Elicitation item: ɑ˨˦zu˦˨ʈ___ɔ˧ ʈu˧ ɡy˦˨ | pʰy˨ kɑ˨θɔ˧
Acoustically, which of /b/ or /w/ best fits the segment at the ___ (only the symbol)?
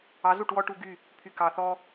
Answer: w